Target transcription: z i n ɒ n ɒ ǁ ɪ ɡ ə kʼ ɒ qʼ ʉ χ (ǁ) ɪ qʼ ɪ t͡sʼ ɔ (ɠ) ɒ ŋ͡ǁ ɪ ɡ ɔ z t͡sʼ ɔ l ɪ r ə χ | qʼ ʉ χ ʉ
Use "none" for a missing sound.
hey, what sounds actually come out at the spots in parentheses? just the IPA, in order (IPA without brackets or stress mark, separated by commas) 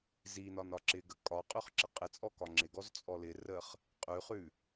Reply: ǁ, k